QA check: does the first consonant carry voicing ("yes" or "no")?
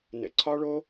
yes